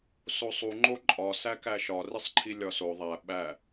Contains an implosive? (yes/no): yes